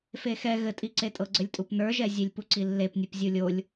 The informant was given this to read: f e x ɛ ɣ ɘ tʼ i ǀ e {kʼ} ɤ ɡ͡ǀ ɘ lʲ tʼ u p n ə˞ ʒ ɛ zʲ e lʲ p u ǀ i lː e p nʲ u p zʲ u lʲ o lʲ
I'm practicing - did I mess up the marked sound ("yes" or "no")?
yes